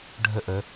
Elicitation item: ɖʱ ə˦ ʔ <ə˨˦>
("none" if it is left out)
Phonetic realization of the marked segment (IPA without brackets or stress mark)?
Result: ə˨˦